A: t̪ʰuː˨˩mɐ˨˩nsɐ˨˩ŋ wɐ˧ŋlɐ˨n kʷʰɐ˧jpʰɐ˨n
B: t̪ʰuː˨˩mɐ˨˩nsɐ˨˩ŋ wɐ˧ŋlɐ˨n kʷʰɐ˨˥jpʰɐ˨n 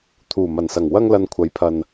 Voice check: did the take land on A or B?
B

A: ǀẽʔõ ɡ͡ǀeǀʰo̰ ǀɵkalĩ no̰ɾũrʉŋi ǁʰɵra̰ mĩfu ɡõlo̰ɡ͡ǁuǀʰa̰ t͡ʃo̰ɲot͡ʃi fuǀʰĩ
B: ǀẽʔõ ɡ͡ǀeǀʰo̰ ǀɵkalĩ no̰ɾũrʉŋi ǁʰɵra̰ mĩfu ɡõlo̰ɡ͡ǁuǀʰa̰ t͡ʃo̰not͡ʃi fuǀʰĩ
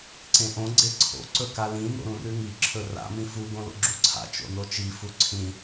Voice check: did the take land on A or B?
B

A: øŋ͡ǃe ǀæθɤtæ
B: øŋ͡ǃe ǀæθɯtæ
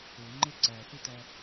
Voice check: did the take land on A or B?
B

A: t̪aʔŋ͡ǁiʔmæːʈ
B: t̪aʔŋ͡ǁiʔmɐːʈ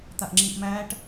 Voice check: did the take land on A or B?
A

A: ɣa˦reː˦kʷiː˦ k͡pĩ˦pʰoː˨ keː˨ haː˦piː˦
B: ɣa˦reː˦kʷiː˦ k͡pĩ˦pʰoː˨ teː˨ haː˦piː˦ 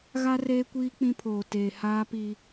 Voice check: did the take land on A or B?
B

